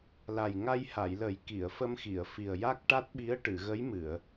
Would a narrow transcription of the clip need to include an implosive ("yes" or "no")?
yes